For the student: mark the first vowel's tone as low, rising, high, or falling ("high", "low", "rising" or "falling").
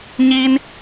high